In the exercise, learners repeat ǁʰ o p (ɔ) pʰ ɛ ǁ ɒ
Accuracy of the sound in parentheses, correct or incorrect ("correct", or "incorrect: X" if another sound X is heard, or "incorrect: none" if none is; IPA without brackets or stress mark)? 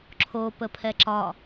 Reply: incorrect: ə